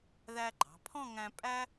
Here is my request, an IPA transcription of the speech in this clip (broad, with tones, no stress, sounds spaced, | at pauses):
ð æ˧ ɡ͡ǃ ɑ̤˩˧ pʰ ɔ̃˥˧ ŋ æ̃˧ pʼ æ˥